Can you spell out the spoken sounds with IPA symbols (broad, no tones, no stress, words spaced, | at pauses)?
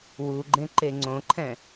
wuɡ͡ǃẽ ǃeŋ͡ǀõǃʰɛ̃